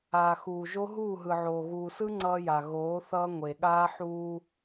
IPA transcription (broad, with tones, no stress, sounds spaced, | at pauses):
aː˨ x uː˨ ʒ o˦ ɦ uː˦˨ ɦ ɯ˨ ʕ oː˨ ɣ uː˨ s ɯ˦ ŋ͡ǀ ʌː˦ j a˨ ɣ oː˨˦ θ ʌː˦ ŋʷ e˨ ɠ aː˦ ħ uː˦